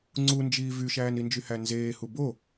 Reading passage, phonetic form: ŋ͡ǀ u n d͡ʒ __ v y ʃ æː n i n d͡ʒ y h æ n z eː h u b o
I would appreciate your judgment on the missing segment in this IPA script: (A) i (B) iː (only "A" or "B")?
B